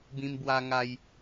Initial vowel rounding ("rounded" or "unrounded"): unrounded